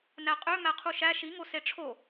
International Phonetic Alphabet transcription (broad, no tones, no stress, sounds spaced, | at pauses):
n æ qʼ ø m æ qʰ u ʃ æ ʃ i ŋ o s e ʈ͡ʂʰ o